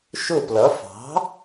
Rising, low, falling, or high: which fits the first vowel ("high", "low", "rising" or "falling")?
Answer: falling